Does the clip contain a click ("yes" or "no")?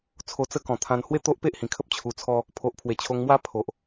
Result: no